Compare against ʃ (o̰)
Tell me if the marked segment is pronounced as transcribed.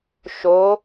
no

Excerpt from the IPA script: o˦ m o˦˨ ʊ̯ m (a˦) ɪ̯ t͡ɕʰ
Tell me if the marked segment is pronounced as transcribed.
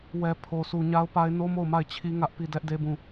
no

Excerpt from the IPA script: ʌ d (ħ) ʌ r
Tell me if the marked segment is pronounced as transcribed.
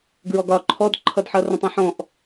yes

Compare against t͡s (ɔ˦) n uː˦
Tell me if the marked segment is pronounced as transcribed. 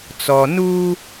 no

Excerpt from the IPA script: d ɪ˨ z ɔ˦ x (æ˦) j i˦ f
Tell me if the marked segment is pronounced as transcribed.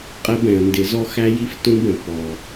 yes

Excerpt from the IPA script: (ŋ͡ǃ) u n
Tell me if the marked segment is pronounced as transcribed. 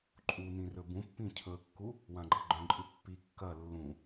no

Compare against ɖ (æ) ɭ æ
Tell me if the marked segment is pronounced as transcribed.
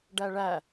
yes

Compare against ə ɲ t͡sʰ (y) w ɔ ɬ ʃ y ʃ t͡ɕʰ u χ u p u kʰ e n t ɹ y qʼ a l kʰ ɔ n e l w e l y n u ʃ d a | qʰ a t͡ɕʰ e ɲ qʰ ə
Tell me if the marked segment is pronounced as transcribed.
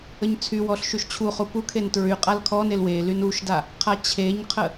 yes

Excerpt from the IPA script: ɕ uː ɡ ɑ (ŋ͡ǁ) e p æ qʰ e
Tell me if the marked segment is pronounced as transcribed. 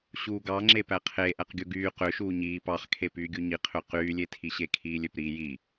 yes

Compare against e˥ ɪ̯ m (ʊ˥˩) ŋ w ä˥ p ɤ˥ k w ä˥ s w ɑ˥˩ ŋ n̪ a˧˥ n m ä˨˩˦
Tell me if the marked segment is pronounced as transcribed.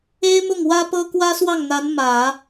yes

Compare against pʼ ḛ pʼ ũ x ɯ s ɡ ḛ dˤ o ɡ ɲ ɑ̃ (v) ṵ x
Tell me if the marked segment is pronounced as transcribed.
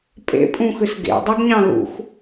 no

